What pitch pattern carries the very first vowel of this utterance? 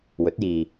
rising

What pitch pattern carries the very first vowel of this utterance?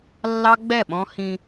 high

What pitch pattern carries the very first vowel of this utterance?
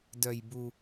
low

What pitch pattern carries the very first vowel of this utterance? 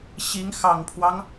rising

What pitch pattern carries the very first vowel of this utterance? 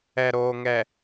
low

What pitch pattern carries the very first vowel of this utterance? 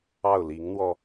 falling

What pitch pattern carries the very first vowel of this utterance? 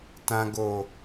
low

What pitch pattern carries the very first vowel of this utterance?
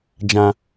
low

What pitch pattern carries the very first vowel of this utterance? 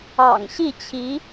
low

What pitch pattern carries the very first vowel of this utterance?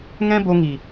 high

